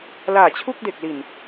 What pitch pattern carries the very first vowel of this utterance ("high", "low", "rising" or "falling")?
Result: low